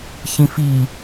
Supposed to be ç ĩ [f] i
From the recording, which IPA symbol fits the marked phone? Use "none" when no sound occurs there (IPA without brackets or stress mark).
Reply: f